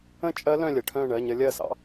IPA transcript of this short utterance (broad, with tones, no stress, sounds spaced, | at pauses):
ə̃˥˧ t͡ʃʼ ɜ˦˥ l œ̃˥˧ lʲ ə˨˩˦ ʈʰ œ̃˥˧ ɳ ɜ˧˥˧ ɲ ə˦˥ lʲ ɜ˥˩ s ɑ̰˦˥